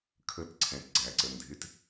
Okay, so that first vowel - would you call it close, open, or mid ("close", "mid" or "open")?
mid